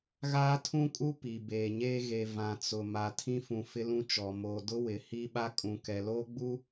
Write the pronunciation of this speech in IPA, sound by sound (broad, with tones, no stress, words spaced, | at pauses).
ɣaː˦tʰũ˦kʼu˦ pi˨ beː˨ɲeː˦ ɣe˨ vã˨t͡sʊ˨ ma˨tʰĩ˦fũ˨ fɪ˦lũ˦t͡ʃɔ˨ mo˨dʊ˦ wɪ˨hi˦ɓa˦ kʼũ˨ kɛ˨loː˦ɡ͡bu˦